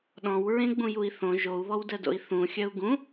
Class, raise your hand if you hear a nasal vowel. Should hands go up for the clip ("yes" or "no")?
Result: yes